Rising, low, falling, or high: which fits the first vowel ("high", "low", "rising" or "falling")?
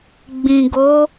low